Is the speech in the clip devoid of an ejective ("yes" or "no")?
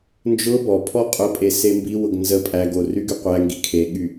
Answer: no